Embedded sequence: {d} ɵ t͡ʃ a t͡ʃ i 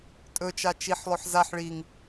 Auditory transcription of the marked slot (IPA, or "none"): tʼ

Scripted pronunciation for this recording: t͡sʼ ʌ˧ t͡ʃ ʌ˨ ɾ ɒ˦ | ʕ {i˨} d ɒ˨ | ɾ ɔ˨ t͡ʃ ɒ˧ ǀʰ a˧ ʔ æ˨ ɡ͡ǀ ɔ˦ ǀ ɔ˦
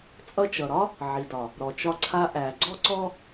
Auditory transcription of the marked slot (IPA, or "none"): i˨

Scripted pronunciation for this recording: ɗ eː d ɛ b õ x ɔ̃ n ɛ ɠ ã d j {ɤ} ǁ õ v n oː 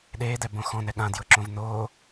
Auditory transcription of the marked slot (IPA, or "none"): ɤ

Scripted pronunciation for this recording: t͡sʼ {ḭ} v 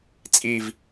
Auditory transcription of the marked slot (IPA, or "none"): i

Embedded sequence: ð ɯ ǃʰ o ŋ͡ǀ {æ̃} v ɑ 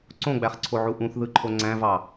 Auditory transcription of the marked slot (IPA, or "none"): æ̃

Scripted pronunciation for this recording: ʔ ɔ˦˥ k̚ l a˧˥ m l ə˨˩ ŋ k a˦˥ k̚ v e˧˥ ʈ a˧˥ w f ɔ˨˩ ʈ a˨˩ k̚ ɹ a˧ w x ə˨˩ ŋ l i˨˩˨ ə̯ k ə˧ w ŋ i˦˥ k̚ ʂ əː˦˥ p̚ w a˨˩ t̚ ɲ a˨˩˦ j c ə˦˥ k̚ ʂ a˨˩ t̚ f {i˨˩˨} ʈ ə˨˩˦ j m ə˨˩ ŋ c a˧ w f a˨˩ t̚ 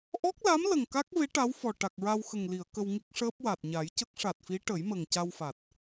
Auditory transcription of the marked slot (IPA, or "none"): i˧˥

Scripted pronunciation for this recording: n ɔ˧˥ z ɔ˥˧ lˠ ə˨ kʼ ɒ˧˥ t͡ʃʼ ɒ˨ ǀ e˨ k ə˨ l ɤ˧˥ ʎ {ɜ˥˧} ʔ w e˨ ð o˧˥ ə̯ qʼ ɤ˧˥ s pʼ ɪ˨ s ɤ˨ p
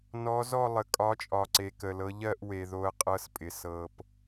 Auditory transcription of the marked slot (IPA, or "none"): ɜ˥˧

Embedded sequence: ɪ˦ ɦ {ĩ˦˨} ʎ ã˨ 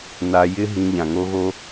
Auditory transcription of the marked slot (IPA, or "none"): ĩ˧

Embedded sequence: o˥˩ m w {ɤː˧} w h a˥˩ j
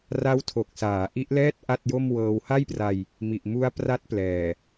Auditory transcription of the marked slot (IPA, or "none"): ɤː˧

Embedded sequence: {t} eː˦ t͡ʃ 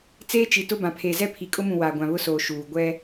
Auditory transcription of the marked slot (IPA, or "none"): t͡s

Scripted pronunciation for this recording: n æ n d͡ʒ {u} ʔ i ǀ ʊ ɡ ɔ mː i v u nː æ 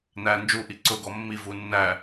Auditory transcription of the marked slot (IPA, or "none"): u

